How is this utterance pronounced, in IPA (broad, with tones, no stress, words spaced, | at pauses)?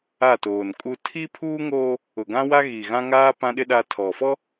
a˦˨toː˨nkʼu˦ tʰi˦pʰuː˦ŋoː˦ | ʊ˨ɡã˦wa˦ ɣi˨ ɣã˦ŋaː˦ pã˦ɗɪ˦ ɗa˦ tʰɔ˨fɔ˦